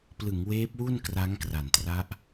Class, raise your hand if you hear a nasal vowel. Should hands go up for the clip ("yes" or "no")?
no